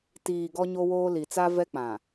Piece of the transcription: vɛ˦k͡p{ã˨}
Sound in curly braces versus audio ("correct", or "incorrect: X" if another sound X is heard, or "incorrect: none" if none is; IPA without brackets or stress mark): correct